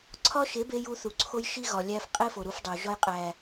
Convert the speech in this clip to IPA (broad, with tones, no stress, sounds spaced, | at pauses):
ǀʰ ɒ˦ ʃ e˨˦ b e˧ j u˧ θ u˨ ǀʰ o˧ j ʃ i˦ ɣ ɒ˨ lʲ æ˧ f qʼ e˦ f o˨ ɾ u˧ f dˤ o˨ ʒ ɒ˧ j qʼ æ˨